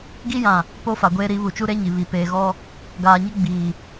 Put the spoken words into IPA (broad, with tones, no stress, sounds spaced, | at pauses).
ɡ i˦ j ã˨ | p o˦ f a˨ ɡʷ eː˦ ɾ i˨˦ β u˨ t͡ʃ u˦ ɾ e˦ ɲ i˨ β i˨ p eː˨ ɣ ɔ˦ | ɡ aː˨ ɲ ɪ˦ ɡ͡b iː˨